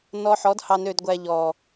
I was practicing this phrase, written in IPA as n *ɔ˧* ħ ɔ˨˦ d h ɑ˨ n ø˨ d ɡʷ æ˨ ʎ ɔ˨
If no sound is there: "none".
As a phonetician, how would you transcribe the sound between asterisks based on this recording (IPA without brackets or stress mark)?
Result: ɔ˧